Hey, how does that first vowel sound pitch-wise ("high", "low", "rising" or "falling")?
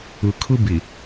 low